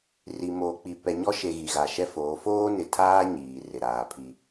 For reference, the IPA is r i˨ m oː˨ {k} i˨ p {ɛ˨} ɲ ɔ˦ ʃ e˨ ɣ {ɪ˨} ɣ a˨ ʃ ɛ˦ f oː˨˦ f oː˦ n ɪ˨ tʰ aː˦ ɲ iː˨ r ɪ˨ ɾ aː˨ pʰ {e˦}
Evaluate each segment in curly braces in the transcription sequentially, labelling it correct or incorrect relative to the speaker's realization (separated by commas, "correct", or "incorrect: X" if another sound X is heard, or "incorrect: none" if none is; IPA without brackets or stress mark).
incorrect: k͡p, correct, incorrect: i˨, incorrect: i˦